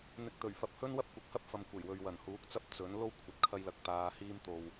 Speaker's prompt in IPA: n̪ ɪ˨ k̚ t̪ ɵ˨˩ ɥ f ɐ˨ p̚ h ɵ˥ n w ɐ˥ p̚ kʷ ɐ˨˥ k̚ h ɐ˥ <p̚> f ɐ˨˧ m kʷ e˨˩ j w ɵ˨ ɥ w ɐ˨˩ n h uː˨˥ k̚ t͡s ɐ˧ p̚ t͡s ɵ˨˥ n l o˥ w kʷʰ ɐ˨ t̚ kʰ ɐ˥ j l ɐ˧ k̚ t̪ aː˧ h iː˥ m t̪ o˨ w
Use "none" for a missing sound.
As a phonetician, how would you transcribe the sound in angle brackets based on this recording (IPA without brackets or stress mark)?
p̚